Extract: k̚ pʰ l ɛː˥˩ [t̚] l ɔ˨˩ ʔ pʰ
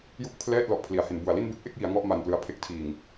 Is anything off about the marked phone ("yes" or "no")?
no